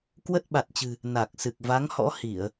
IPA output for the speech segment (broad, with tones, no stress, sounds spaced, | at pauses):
k w ə˦˥ t̚ ɓ a˨˩ t̚ t͡ɕ ɨ̤˨˩ | n a˨˩ k̚ s ɨ˨˩ k̚ v a˨˦ ŋ h ɔ̰˧˥ h i˧˩˨ ə̯